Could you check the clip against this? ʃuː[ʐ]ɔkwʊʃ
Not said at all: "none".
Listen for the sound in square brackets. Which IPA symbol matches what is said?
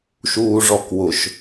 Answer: ʐ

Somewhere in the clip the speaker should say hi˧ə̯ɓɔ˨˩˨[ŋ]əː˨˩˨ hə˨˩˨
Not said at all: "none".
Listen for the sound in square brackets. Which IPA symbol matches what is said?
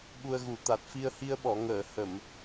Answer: ŋ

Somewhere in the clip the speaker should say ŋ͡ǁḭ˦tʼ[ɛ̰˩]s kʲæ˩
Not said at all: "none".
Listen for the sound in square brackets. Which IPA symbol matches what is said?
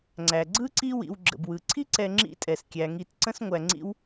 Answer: ɛ˩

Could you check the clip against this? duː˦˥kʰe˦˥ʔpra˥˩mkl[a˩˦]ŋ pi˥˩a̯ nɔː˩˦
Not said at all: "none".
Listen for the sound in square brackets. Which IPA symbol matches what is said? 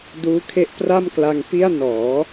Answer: a˧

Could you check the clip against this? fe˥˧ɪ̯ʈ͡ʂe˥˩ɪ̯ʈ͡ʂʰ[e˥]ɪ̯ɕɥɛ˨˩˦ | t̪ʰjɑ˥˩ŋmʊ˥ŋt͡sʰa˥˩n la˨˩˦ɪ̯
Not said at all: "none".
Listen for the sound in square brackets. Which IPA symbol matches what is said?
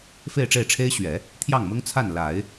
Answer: e˥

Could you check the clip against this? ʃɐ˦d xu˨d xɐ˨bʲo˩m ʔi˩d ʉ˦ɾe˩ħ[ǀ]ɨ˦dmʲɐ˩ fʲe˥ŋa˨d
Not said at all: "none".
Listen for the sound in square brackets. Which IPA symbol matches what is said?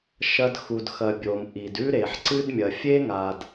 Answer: ǀ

